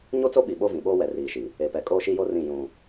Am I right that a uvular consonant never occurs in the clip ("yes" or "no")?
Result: yes